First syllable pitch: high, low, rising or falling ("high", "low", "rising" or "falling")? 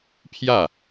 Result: falling